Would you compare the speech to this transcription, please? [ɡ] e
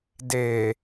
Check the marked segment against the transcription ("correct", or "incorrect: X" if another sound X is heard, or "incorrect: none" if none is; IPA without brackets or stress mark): incorrect: d